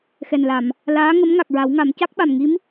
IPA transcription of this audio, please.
xɛ˨˩nla˨˩˨m | laː˧˥ŋə˧˥m ŋa˨˩k̚ɹa˨˩˦wŋa˨˩˦m ca˦˥k̚ɓa˨˩mŋi˧˥m

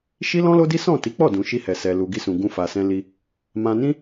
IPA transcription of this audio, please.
ʃi˦lɔ̃˦lo˦di˦ sɔ̃˦˨ ti˨˦k͡pɔ˦˨dũ˨ ʃi˧hɛ˨ sɛ˨lu˨ ɡi˧sũ˨ ɡũ˧ fa˨sɛ̃˧li˧ | mã˧nĩ˦

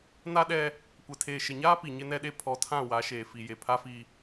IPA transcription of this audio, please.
na˦ɗɛ˦ | kʷɛ˨tʰeː˨ʃɪ˨ɲaː˦ pi˨ɲɪ˦nɛ˦ɗe˦ pʰɔ˨˦tʰã˦˨ wa˨˦ʃeː˨fi˨je˨ pʰa˦fi˦

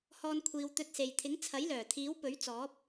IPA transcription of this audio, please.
hɔː˧nkʷʰiː˨wt̪ɵ˧t̚se˨j t̪ʰɪ˨˥ŋt͡sʰɐ˨˥jlœː˨˩ t̪ʰiː˨˥wpɵ˨˥ɥt͡sɔː˨˥p̚

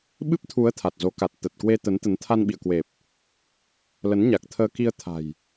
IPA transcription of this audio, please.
ɓɨ˦˥p̚t̪ʰu˨˦ə̯ t̪ʰa˨˩t̚zo˨˦ka˨˩t̚ t̪ə˨˩t̚kwe˧ t̪ə˨˦nt̪ə˨˦n t̪ʰa˧nɓḭ˧˨ə̯kwe˨˩p̚ | lə˨˦nɲa˨˩k̚t̪ʰəː˧ki˧ə̯ t̪ʰa̤˨˩j

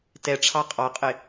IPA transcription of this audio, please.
tɛʈ͡ʂʰɑ qʼɑqʼɪ

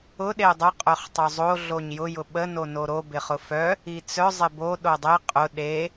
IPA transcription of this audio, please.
ʊ ɗeʊ̯dˤə qʼœχtˤozˤo ɮoɲjʊ jʊɓə nonoɾo bɪχʊfœ | it͡sœ zˤɪbo ɗodˤe qʼʊ ɗe

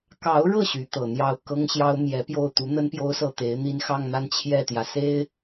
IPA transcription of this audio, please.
kɑ˧˥ʊ̯ɻɤ˥˩ ɕy˧˥t̪ɤ˨˩ n̪jɑ˥˩ʊ̯ kɤ˥ŋɕjɑ˥ʊ̯ mjɛ˧˥ pjo˥˩ʊ̯ t̪u˧˥n̪ə˥n pjo˥ʊ̯sɤ˥˩t̪e˧˥ɪ̯n̪i˥n xɑ˥˧ŋn̪a˥˧n t͡ɕʰjɛ˥˩t̪jä˩se˥ɪ̯

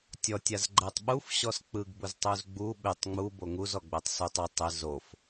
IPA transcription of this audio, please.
tʲɔtʲaz ɡ͡ǃɛtˤɓufɕɔs k͡pɯɡbʊztˤuz ɡ͡bu ɓɪtˤ ŋ͡mu boŋuzɔ ɡ͡bɛtˤsutˤ ɪ tˤɪ zof

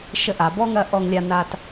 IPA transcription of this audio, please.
ʃə˧˥ʔa˩˧bɔ˥ŋɐ˧˥ ʔɔ˧ŋlʲa˧na˧t

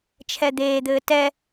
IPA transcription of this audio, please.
t͡ʃʰɛd̪eːd̪ɘː tɛ

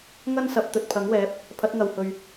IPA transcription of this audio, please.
ŋɐ˥nsɐ˨˥p̚ t̪ɵ˨t̚pʰɐ˨˥ŋwɛː˨˥p̚ | pʰɐ˨˥t̚ŋɐ˨whɵ˨ɥ

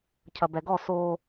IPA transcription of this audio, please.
cʰɐbɛɡɔ so

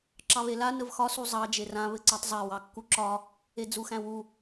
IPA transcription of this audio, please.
ǁɑβela nəvxɒ suzˤɑ d͡ʒerã βɘǀatˤzˤa wɑkːuǁɒ | ed͡zuxæ̃wu

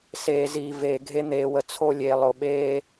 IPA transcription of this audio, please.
seː˨ziː˨ veː˨ɡʱe˦ n̪eː˨wə˨ t͡sʰo˦ lʲeː˨lˠo˨ɓeː˦

